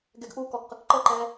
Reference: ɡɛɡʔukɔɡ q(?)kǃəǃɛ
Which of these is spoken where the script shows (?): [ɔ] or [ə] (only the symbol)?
ə